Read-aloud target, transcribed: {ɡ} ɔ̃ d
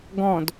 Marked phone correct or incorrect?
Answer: correct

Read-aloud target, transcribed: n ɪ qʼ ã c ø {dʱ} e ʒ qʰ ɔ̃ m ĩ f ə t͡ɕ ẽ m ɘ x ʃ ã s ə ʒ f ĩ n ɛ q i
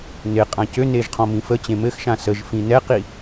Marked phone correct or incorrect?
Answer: incorrect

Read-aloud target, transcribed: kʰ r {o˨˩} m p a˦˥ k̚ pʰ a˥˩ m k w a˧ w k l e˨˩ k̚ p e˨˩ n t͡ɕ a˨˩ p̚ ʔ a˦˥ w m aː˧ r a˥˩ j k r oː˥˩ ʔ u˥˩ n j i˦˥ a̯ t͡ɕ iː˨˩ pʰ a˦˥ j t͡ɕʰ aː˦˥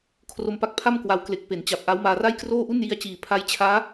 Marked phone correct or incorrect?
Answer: incorrect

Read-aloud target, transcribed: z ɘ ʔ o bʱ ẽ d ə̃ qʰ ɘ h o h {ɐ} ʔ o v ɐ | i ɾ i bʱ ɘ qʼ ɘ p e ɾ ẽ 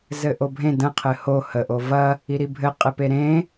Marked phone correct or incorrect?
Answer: incorrect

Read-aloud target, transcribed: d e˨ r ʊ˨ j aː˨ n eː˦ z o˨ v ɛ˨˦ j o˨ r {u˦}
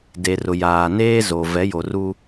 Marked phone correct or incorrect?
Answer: correct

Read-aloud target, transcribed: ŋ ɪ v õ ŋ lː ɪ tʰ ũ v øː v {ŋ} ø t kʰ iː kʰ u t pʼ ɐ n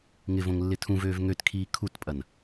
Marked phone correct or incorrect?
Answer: correct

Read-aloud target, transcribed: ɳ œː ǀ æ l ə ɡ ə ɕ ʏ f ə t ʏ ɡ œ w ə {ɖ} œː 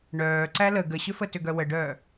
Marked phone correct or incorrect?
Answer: correct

